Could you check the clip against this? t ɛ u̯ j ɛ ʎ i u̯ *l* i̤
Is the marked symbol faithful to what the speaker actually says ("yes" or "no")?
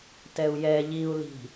yes